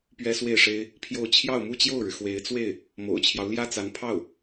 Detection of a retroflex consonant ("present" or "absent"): present